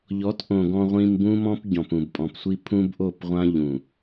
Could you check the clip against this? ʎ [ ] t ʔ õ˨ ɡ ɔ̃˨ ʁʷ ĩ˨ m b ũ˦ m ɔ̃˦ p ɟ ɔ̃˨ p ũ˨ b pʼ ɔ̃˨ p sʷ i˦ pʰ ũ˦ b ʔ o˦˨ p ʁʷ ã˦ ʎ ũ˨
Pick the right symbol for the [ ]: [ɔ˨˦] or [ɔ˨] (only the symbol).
ɔ˨˦